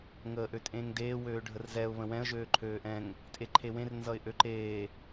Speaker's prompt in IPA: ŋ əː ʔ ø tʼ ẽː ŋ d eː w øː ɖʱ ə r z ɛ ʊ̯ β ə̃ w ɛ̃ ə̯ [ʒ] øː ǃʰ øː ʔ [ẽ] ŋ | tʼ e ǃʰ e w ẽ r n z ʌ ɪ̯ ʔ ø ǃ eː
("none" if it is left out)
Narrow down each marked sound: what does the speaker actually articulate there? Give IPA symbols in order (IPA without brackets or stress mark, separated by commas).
ʒ, ɛ̃